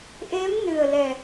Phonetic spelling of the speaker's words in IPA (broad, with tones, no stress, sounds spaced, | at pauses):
ʔ e˧˥ m n ɨ˨˩ ə̯ l ɛ˨˩